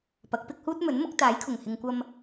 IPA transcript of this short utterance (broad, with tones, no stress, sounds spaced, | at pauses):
p ɐ˨˥ k̚ p ɪ˨˥ k̚ h uː˥ t̚ m ɵ˨˥ n m ʊ˨˥ k̚ t̪ aː˨˥ j kʰ ʊ˨˩ ŋ h ɪ˨ ŋ kʷ ɐ˧ m